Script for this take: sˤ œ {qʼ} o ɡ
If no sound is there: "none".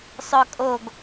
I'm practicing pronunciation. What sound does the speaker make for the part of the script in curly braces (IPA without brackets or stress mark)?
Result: kʼ